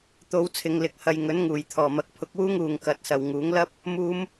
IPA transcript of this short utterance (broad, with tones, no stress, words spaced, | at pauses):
t̪o˨˧wt͡sʰɪ˨ŋlɪ˨k̚hɐ˨j ŋɵ˨˥nŋuː˨˩j t̪ʰɔː˨˩mɐ˨˥k̚ pʰʊ˧k̚wuː˥ŋuː˨ŋ kɐ˨˥t̚sɐ˨w ŋuː˨˥ŋ lɐ˥p̚ | muː˨˧m